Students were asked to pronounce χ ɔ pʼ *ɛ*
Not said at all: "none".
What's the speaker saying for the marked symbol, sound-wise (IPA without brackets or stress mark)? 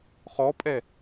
ɛ